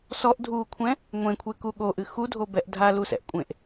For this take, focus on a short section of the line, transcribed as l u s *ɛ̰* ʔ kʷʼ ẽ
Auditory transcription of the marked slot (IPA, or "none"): ɛ̰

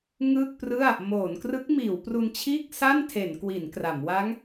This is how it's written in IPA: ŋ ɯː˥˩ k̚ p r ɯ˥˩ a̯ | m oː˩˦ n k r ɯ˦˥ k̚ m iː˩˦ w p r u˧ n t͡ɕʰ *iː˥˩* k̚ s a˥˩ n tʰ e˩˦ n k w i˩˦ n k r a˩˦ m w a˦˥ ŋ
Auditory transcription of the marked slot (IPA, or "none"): iː˥˩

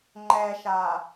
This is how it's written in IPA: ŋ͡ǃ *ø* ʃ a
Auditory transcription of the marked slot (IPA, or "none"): ɛ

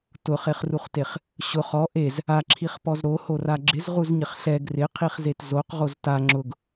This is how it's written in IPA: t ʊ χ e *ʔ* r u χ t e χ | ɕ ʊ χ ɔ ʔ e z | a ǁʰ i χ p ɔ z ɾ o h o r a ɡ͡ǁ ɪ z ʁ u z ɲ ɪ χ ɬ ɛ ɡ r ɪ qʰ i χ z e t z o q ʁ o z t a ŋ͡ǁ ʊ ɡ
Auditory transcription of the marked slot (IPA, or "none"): χ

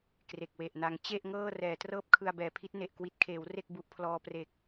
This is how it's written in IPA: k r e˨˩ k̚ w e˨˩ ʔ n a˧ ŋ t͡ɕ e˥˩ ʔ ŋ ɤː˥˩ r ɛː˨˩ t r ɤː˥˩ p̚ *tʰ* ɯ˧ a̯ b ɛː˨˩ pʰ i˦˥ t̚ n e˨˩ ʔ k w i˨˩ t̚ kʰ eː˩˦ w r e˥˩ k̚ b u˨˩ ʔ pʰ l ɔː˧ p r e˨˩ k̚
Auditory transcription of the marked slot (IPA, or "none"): kʰ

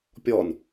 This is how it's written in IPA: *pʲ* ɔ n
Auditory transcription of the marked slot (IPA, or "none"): pʲ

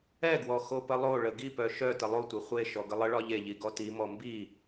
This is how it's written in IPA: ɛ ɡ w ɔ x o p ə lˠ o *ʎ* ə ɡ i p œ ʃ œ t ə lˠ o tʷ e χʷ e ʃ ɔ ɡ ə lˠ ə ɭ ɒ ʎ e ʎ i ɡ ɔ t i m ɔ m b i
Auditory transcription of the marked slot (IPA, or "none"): ɭ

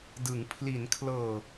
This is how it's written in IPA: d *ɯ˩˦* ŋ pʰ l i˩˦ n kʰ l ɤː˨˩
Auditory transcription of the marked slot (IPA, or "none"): ɯ˩˦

